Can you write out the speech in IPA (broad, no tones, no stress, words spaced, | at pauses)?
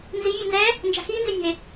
nzi vʲanzɛ | nd͡ʒa̤xiː nzɪnʲə̤e̯